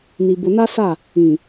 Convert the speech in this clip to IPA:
n i˨ b ʊ˨ n a˦ s a˦˨ | ĩ˨

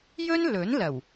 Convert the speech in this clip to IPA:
j ɵ˥ n l ɵ˨˥ n l ɐ˨˩ w

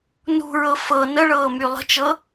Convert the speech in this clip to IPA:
n ṳ ɹ ɤ f ɤ n ə ɭ ɤː m y lˠ ə̤ t͡ʃ ɤ

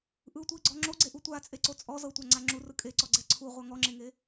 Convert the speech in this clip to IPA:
ʔ ɯ tʷ i ɡ͡ǀ ɔ ŋ͡ǁ o ɡ͡ǀ e ʔ u tʷ a t͡sʼ e ǀ o t͡sʼ ɔ z ɤ tʷ a ŋ͡ǀ a ŋ͡ǁ u r ɯ kʼ e ǀ ɔ ɡ͡ǀ ɛ ǀʰ u ʁʷ a ŋ ɔ ŋ͡ǁ e ŋ e

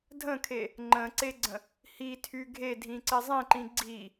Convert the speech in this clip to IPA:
dʱ ə̃ kʰ e | ŋ͡ǃ ə̃ ǀ e ɡ͡ǀ ə̃ | h i tʰ y ɡʱ e dʱ ĩ ǀ ɪ zˤ ĩ ǃ ĩ ɡ͡ǀ i

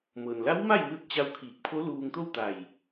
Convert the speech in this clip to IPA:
m ɤː˩ n l a˧˥ w m a˥˨ j m ɯː˧ t̚ t͡ɕ a˧˥ w kʰ iː˧˩ k̚ pʰ o˧˥ l uː˧ ŋ t̪ o˥˨ w t̪ a˧˩ j

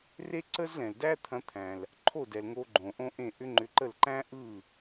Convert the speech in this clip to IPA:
r e˥ ǀ ə˥ z l ɛ̃˩ l d æ˥ t̪ʰ ɐ̃˧ t̪ʰ æ̃˩ l | ǃʰ o˥˩ d ɛ˩ l ŋ o˧ ɡ͡ǃ õ˩ ʔ õ˥ ʔ ẽ˥˩ ʔ ʏ˥ ŋ͡ǃ ʏ˧ ǃ ə˥˩ l ǃ æ̃˥ ʔ ɯ˥˩

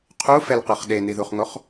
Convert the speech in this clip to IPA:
qʰ u f ɛ l q ɯ χ ɗ e n i ð u χ ŋ o χ

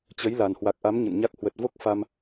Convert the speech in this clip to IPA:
t͡ɕ ə˨˦ j l a˨˩ n h w a˨˩ k̚ ʔ a˨˦ m ɲ ə̰˧˨ n ɲ a˦˥ k̚ h w ə˨˩ t̚ v o˦˥ k̚ f a˧ m

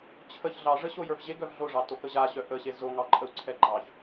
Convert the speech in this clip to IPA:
t͡ɕʰ ə ç ɮ ɑ ʐ ə ɕ o j ə˞ v ʑ e ɡ œ v ɮ o ʐ ɑ t o k ə ʑ a ɕ œ ʔ ə ɕ e z o ŋ ɑ ǃʼ ə w ǀʰ ɛ ɡ͡ǃ ɑ ç

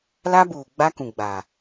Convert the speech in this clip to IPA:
l a˦ b uː˨ ɡ͡b a˦ k ũ˨ ɡ͡b a˨

